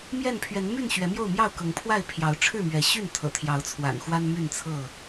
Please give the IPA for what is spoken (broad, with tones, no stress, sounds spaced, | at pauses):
m j ɛ˥˨ n pʰ ɥ ɛ˨˦ n m y˥˨ n ɕ ɥ ɛ˨˦ m j o˥˨ ʊ̯ m j ɑ˥˨ ʊ̯ k ɤ˨˦ ŋ pʰ w a˥˨ ɪ̯ pʰ j ɑ˨˦ ʊ̯ ʈ͡ʂʰ ɻ̩˥˨ m ɥ ɛ˨˦ ɕ y˥˨ n t̪ʰ ɤ̰˨˩ t̪ʰ j ɑ˨˦ ʊ̯ t͡sʰ w a̰˨˩ n x w a˦ n m y˥˨ n t͡sʰ ɤ˥˨